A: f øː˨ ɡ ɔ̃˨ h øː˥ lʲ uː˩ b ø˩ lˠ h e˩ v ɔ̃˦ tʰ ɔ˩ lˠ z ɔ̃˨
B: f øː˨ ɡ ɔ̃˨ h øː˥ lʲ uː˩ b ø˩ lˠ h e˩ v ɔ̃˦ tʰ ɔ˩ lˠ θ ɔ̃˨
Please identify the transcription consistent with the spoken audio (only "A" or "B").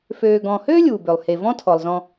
A